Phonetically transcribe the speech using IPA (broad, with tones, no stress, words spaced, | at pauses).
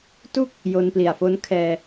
tu˥˩k̚ | jo˧npli˨˩a̯fo˦˥n kʰɛː˧